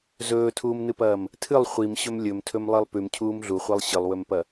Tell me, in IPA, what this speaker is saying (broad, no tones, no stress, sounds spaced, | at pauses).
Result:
z ɵː tʰ uː m n ɨ p ɐː m | tʰ ɨ lˠ χʷ i m ɕ ɵ m lʲ ɵ m tʰ ɵ m lˠ i lˠ p ʉ m cʰ uː m ɮ u χʷ i lˠ ɕ ɨ lˠ w ɵ m p ɐ